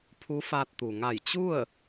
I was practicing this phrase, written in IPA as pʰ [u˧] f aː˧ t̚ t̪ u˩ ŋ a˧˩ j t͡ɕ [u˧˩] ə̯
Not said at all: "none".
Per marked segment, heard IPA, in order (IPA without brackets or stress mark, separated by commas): u˧˥, u˥˨